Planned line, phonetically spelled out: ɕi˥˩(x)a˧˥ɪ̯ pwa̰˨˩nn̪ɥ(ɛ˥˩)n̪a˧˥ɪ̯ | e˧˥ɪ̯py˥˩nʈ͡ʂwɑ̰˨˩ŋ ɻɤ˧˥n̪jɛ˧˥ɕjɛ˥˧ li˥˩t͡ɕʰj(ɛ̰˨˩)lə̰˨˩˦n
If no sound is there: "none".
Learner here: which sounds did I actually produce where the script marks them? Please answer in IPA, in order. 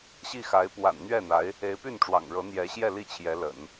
x, ɛ˥˩, ɛ˧˥

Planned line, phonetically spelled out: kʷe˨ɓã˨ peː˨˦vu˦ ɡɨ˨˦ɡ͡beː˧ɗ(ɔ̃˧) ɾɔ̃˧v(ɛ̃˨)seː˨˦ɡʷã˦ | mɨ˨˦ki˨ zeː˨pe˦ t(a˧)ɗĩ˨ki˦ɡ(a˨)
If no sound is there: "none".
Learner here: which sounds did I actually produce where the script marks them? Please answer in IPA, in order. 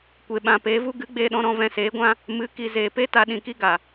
ɔ̃˧, ɛ̃˧, a˧, a˨

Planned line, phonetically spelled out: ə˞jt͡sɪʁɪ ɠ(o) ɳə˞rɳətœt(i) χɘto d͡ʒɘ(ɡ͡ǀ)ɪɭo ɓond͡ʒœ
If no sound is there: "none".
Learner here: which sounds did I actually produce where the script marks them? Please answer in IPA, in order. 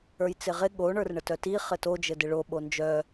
o, i, d

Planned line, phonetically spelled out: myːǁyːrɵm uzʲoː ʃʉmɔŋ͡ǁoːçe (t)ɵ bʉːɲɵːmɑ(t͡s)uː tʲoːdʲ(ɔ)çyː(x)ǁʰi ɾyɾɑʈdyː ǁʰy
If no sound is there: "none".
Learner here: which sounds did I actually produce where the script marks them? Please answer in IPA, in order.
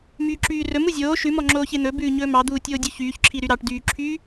n̪, d̪, ɵ, ç

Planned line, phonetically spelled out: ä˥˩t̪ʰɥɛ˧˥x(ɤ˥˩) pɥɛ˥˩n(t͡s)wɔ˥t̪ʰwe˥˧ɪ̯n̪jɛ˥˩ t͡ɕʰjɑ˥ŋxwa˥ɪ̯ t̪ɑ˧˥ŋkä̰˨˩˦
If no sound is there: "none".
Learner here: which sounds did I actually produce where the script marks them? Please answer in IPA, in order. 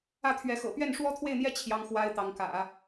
ɤ̰˨˩, ʂ

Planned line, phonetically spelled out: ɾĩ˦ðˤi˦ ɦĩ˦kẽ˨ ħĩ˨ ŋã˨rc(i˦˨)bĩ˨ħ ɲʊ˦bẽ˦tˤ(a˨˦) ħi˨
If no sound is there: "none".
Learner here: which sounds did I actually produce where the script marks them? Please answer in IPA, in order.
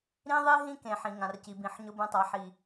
i˨, a˨˦

